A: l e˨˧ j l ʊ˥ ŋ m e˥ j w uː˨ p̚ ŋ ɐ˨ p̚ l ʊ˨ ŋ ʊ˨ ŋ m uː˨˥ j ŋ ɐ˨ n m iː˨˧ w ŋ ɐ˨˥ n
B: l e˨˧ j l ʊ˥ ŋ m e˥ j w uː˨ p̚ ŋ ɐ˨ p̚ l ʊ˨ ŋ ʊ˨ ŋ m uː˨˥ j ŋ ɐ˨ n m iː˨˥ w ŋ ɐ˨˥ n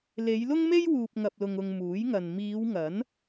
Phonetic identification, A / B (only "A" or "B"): A